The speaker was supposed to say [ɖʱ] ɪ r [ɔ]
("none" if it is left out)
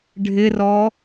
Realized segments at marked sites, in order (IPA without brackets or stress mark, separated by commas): ɖʱ, ɔ